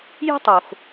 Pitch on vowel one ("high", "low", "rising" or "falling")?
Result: high